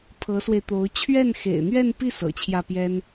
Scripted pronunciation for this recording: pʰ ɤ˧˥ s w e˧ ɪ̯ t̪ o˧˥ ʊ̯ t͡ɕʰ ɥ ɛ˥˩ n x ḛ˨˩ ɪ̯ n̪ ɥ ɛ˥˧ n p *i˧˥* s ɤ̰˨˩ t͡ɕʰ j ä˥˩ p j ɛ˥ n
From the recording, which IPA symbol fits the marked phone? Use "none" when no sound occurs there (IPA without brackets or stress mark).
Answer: i˥˩